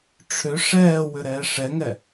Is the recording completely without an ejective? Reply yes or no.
yes